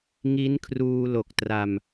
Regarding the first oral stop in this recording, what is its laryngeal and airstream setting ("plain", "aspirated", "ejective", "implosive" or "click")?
aspirated